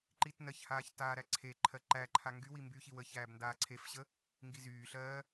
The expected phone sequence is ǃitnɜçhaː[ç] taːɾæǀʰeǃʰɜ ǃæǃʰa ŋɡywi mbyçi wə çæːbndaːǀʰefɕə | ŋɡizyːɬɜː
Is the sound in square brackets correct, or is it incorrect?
correct